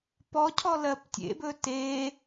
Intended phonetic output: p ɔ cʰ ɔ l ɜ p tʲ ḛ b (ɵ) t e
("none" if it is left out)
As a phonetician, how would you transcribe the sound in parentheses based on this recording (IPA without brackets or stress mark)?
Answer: ɵ